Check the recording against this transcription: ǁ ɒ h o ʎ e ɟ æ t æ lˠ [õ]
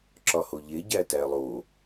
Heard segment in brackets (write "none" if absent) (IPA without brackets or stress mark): o